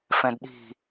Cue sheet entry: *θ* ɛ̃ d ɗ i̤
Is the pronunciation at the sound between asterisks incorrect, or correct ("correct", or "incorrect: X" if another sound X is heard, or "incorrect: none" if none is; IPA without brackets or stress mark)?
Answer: incorrect: f